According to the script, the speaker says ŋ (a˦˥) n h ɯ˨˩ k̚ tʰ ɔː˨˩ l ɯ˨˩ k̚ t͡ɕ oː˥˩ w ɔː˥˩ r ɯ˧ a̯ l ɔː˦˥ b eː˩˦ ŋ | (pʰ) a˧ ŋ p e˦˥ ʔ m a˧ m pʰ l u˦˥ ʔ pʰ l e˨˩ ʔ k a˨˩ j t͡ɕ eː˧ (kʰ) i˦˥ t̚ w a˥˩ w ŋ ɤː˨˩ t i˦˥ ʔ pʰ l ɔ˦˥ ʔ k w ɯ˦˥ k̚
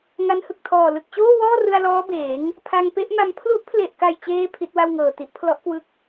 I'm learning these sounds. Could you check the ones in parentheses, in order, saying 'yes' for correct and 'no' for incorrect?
yes, yes, no

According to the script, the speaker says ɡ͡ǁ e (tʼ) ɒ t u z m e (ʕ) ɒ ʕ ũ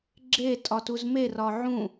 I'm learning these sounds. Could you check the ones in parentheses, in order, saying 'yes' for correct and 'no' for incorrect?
yes, no

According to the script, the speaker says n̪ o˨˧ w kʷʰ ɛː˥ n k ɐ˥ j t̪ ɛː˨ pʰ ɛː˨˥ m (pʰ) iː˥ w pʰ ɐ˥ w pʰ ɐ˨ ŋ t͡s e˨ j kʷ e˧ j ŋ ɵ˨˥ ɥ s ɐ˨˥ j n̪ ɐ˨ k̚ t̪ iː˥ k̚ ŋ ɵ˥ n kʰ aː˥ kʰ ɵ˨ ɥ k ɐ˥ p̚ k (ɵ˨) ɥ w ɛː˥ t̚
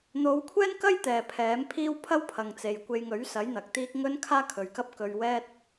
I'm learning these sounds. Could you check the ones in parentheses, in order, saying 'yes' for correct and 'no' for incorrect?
yes, no

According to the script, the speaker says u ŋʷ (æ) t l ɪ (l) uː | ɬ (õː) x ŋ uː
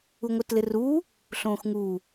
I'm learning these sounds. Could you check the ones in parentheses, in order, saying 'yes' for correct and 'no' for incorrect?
no, no, yes

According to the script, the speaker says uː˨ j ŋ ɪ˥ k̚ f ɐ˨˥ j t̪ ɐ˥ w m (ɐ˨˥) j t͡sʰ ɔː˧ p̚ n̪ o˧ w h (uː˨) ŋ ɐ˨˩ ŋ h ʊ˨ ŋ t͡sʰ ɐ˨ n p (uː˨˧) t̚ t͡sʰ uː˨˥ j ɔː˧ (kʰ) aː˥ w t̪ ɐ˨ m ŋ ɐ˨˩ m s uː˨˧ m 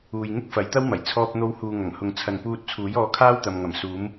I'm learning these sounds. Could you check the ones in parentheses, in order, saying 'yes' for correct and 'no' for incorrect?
no, yes, no, yes

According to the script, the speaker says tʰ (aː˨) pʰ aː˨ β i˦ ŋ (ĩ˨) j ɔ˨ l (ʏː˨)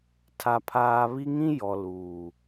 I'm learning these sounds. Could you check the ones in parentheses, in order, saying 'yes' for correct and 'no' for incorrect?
no, no, no

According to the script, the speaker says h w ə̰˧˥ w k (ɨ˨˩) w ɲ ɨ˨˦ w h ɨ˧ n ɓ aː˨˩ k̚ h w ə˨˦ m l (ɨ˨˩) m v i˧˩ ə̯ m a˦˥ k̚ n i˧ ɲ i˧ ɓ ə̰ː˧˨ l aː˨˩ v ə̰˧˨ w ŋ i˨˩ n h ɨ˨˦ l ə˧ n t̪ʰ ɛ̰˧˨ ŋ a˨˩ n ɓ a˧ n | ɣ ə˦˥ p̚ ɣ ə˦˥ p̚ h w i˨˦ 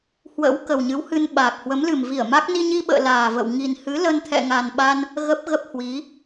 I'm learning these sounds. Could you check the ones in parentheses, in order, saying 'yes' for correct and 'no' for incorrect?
no, yes

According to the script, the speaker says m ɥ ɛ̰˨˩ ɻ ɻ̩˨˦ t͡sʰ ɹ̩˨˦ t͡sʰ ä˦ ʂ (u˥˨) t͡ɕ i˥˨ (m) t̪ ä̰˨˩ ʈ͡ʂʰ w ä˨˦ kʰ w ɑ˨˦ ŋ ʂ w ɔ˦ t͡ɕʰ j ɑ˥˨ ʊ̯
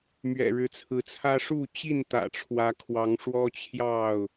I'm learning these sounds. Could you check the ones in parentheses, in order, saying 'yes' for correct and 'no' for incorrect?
yes, no

